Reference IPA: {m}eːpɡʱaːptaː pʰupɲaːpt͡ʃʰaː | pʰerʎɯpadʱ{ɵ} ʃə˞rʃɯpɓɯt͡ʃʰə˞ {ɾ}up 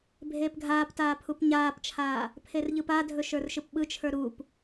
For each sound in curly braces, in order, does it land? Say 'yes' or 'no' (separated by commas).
no, yes, yes